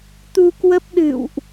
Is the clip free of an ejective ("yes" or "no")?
yes